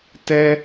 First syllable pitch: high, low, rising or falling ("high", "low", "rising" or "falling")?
high